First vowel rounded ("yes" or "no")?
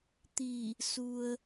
no